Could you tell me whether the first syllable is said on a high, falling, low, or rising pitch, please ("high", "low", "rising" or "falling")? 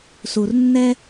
low